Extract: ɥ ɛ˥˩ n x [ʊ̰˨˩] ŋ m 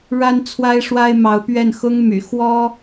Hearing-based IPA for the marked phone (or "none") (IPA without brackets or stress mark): ʊ˥